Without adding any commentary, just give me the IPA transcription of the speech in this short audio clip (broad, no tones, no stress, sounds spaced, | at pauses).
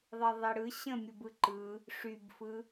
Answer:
ðˤ i ðˤ i ɽ ɯ ɕ ə̃ mʲ ɯ b ɯ ǃ ɯ | ʂ y b f ɯ